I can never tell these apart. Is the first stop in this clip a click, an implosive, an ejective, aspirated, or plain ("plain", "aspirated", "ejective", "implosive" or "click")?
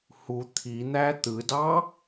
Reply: aspirated